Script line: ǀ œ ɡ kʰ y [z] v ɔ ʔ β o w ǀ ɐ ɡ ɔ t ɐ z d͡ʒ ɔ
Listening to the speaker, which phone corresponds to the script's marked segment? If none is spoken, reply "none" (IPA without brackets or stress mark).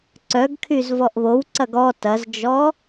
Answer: z